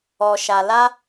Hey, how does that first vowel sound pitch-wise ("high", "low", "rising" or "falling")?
low